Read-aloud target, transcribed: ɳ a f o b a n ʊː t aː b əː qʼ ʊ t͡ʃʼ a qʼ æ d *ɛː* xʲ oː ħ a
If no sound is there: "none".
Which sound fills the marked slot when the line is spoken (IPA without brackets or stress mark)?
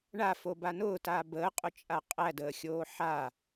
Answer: əː